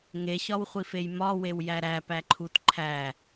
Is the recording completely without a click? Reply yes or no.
no